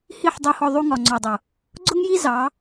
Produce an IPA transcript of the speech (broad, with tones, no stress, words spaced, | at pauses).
hi˦˨ħdˤu˧hɔ˧ ðˤu˧ŋɒ˨ŋ͡ǀɔ˨dˤʊ˨ | ɡ͡ǀʊ˦ŋji˦ zɑ˨˦